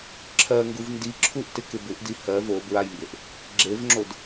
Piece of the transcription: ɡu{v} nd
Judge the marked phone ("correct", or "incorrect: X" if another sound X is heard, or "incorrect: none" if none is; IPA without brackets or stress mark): correct